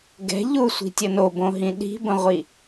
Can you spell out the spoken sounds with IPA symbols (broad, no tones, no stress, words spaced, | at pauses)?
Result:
ɡɛ̤ ʎusʷi̤tʲə nobõɦĩ ɗi̤bə̃ʁʷi